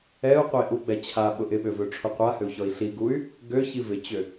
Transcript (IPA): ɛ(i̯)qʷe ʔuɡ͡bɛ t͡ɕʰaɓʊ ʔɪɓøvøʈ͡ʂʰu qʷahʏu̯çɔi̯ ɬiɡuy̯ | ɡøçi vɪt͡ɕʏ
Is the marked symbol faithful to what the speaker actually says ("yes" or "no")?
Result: no